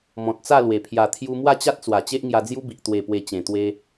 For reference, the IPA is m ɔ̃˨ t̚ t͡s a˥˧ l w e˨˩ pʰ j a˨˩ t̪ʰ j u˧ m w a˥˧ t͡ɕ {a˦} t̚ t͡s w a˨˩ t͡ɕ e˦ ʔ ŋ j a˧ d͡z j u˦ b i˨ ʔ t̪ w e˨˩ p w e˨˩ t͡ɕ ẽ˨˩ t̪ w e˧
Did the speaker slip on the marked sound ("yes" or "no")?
no